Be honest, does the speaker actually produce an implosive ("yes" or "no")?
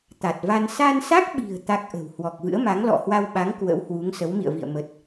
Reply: yes